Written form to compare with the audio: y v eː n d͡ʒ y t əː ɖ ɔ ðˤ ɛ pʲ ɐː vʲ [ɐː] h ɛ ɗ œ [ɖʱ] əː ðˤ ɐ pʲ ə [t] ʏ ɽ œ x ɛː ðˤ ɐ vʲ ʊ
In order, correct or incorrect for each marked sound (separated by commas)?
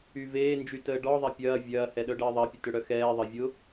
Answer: correct, incorrect, correct